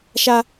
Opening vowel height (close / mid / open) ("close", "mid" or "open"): open